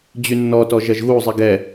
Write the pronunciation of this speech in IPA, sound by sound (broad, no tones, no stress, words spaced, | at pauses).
d͡ʑynːɔtɔ ʒɐʒɣuzˤi ɡɛ